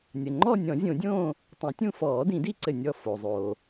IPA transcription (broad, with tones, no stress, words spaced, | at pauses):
nʲə˩ŋ͡ǃɔ˥˧ nʲɔ̃˨˩˦zʲõ˨˩˦dʲõː˥˧ | tˤĩ˨˩˦tʲũ˥˧ fɔː˨˩˦dĩ˨˩˦di˥˧ǀɘ˧˩ nʲɔ˧˩ fo˩zˤoː˩